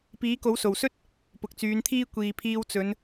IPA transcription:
piː˨˥ko˨˥wso˨˩wsɵ˥t̚ | pʊ˨k̚t͡syː˨˧nt̪ʰiː˥ kʷiː˨pʰiː˧wt͡sɵ˨˧n

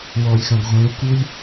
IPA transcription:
wɔlʲxãɡ ʁʷẽu̯kulʲ

